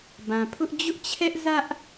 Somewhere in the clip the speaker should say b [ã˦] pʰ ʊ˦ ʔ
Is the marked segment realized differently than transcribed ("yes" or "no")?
yes